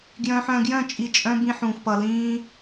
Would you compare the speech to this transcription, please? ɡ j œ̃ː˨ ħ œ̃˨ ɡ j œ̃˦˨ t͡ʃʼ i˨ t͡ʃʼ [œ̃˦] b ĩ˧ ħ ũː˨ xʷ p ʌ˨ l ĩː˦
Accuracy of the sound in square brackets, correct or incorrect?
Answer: incorrect